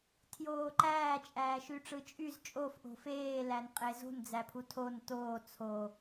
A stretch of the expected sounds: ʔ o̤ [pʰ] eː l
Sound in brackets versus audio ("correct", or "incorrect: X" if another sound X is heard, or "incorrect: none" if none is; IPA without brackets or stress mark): incorrect: f